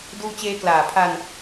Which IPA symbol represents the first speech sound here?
d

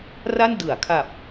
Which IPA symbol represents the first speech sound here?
r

